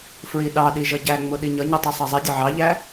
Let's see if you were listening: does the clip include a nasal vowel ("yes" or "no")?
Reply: no